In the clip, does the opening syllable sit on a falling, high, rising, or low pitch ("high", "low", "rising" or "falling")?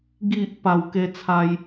low